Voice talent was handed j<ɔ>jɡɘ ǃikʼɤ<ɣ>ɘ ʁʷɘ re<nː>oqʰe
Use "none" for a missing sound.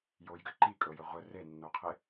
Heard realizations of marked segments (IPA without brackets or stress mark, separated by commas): o, j, nː